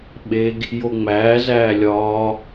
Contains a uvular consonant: no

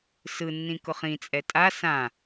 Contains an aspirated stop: no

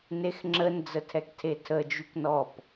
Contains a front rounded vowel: yes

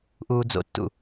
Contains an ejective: no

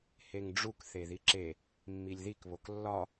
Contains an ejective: no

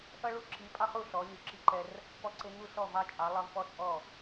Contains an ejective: yes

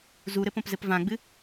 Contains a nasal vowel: yes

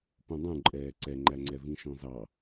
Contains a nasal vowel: yes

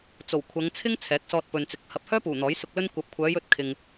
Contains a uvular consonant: no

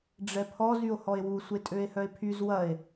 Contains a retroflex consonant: yes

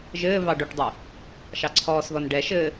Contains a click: yes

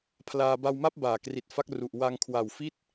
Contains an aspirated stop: yes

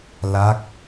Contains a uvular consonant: no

